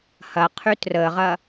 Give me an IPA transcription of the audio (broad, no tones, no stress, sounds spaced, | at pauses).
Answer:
h ɐ qʰ y t r ə ʁ ɐ